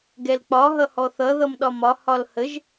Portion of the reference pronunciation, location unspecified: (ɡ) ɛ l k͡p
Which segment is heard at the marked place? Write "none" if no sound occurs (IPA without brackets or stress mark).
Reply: ɡ